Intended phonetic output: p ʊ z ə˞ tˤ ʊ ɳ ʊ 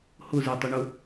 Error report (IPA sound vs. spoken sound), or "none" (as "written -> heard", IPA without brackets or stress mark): p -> h